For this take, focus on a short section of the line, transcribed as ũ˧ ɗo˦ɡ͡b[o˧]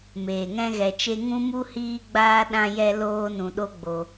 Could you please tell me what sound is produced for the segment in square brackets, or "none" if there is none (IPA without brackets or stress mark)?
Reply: o˧